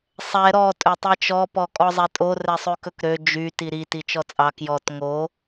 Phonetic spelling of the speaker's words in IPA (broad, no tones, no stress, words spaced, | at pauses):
sˤɛ ɾɔ tʼɵtˤet͡ʃɔ pɔkʼɔzˤɛtʼo rɛsˤʉkɵkɾø d͡ʒy tiɾi tit͡ʃɔt͡sʼɑ kjɔt ŋo